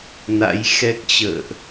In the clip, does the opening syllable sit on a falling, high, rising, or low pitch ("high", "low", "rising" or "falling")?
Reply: rising